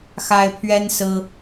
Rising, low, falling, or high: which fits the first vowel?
high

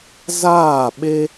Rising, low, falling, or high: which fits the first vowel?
falling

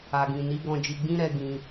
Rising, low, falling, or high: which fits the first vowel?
low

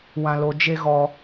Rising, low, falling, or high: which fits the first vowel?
low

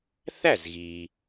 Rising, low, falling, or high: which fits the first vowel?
falling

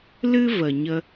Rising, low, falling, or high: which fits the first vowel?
high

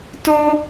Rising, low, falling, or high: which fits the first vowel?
high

